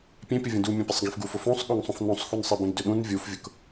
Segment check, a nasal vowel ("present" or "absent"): present